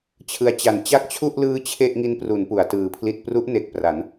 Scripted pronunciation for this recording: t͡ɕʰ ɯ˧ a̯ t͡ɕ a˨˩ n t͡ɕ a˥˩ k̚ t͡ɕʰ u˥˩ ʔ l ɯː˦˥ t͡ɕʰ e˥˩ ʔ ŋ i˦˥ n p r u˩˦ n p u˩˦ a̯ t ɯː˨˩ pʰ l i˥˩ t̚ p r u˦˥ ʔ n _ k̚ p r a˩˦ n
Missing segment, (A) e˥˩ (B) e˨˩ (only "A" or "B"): B